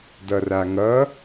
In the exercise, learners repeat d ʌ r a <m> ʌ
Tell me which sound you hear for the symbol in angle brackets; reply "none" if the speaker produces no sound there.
ŋ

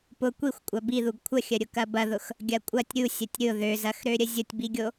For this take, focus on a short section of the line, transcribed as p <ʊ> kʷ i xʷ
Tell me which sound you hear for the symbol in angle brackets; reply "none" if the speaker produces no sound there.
ʊ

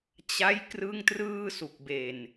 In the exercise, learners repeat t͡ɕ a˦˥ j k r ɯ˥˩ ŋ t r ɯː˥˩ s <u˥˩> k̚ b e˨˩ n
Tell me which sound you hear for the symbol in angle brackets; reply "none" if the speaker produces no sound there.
u˨˩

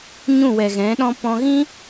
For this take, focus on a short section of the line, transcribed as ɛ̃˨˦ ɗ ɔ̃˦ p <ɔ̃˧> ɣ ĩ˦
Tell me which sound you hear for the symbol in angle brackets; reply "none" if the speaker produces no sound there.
ɔ̃˧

